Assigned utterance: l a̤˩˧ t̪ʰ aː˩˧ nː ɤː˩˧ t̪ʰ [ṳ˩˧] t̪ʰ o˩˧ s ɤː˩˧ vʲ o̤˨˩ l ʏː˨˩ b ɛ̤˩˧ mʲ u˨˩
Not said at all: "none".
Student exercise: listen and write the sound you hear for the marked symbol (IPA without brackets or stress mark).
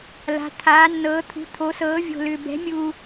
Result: ṳ˩˧